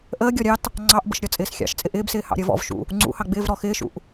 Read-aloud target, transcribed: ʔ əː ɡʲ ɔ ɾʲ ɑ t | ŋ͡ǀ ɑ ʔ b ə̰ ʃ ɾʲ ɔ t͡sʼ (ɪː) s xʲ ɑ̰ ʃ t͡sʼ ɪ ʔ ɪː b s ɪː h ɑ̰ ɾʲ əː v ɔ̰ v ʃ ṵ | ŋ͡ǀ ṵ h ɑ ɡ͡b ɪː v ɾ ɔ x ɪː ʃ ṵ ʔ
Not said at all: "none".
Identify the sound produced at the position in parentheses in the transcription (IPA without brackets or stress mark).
ɪː